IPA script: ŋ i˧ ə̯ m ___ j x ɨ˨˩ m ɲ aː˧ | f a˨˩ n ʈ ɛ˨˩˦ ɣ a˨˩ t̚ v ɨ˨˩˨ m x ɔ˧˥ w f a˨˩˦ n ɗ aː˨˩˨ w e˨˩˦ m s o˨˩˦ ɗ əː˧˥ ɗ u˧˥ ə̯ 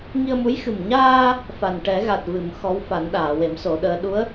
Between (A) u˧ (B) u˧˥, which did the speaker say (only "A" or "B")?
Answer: B